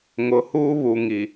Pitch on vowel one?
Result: low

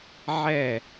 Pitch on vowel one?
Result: falling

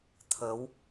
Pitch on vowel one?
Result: rising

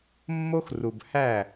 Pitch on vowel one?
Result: high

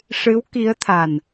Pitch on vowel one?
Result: rising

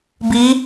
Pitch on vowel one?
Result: rising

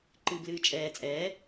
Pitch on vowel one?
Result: low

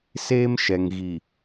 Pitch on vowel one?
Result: high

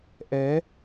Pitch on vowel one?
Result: rising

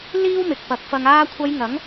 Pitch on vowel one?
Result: high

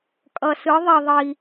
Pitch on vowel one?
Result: low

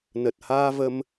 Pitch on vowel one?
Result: low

